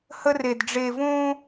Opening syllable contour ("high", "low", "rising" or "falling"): high